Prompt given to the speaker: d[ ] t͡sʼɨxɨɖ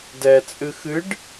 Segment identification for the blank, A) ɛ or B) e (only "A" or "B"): A